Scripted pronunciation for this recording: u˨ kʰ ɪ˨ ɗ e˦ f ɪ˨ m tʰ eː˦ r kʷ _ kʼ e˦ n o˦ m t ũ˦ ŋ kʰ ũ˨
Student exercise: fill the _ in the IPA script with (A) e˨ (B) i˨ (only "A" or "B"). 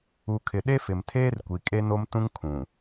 B